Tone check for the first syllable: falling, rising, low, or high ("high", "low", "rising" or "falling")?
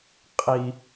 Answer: low